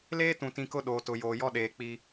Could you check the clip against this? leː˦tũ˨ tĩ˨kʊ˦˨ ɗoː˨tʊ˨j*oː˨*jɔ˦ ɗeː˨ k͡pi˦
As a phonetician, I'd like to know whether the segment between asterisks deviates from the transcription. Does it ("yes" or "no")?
no